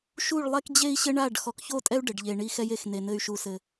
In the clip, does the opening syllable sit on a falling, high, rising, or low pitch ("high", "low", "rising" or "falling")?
falling